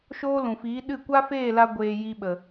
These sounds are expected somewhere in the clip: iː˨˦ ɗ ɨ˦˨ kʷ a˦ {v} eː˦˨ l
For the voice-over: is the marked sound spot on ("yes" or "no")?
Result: no